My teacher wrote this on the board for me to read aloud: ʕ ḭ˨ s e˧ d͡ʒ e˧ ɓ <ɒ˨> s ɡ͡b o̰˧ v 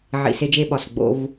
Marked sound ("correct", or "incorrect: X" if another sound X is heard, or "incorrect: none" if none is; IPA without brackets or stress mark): correct